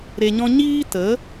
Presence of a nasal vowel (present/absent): present